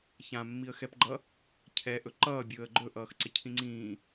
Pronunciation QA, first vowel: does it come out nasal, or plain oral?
nasal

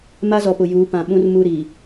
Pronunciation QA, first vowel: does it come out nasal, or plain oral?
oral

